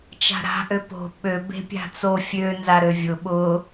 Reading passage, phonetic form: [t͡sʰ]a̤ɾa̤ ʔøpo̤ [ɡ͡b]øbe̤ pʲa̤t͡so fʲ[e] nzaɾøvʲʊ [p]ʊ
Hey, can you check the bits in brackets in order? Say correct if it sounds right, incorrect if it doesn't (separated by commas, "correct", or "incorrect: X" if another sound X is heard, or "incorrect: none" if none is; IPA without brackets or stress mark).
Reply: incorrect: t͡ʃ, incorrect: ɓ, incorrect: ø, incorrect: ɓ